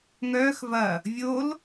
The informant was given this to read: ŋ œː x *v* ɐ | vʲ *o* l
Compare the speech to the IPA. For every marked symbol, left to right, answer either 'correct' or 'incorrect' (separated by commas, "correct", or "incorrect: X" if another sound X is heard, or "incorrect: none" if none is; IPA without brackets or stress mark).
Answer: correct, correct